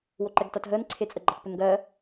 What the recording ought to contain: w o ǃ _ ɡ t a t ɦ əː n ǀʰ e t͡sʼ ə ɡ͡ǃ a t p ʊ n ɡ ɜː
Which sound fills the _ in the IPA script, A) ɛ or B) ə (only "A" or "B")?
A